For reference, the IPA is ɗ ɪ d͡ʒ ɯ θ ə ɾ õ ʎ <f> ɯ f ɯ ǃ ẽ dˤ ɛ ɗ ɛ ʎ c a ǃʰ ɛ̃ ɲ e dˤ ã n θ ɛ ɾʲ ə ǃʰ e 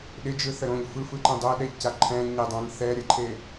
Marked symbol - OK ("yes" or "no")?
yes